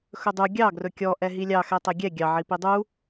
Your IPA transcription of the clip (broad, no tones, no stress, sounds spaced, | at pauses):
x ɵ dˤ u ɡʲ ɑ ɡ r ɵ kʲ ɔ ʔ ɛ ɦ i lʲ ɑ x ɛ tˤ ɛ ɡʲ ɛ ɡʲ ɑ ʕ i p i dˤ u